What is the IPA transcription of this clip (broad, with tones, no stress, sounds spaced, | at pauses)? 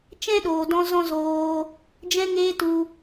t͡ʃ ɛ̃˦ ɗ oː˨ d ɔ̃˧ z ɔ̃˦ z oː˧ | d͡ʒ ɛ̃˧ ŋ eː˧ t u˧